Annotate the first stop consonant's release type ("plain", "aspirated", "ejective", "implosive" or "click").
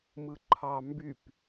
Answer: click